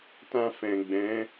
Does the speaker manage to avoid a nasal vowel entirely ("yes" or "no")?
no